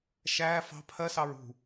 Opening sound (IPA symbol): ʃ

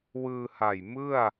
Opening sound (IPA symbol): w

